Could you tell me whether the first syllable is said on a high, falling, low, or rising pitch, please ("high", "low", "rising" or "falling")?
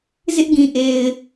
high